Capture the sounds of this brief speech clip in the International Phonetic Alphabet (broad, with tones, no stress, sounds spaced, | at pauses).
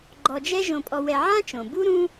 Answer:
ɡ͡ǃ ɔ˨ d͡ʒ ɛ˦ ʒ õ˨ pʼ ɔ˨ w ɛ˨ ʕ ã˦ t͡ʃ õ˩ b u˦ ɾ ũ˥